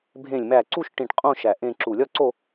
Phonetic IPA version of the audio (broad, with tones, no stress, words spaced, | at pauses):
bʱẽ˧˩lʲmæ˧˩ ǀu˥˧ʃʈĩ˧˩ʈ qʼõ˥˧ ʃæ˧˩ʔẽ˥˧ǁu˧˩ lʲɒ˥˧ǀo˥˧